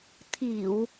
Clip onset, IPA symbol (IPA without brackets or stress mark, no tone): t̪ʰ